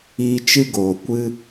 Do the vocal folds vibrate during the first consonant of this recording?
no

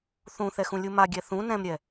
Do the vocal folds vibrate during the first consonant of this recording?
no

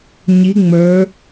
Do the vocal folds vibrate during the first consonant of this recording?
yes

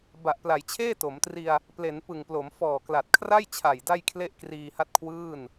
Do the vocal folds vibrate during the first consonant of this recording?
yes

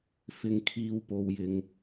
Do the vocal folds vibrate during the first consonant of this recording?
no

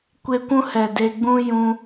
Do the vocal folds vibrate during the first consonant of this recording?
no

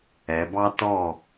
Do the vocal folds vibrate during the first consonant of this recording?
yes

